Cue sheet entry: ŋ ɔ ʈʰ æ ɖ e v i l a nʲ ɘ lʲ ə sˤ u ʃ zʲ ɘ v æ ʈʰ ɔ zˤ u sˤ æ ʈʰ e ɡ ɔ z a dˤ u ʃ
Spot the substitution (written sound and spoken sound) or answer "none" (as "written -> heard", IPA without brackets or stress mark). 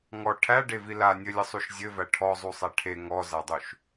ɡ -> ŋ